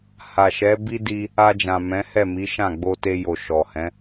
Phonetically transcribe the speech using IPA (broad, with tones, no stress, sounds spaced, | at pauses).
h a˨ ʃ ɛ˨˦ b i˦ d i˧ | a˧ d͡ʒ ã˨ m ɛ̃˨˦ h ɛ˦˨ m i˨˦ ʃ ã˦˨ ɡ͡b o˧ t e˧ j o˨ ʃ ɔ˨ h ɛ̃˨˦